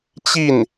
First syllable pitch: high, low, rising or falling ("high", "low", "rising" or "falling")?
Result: falling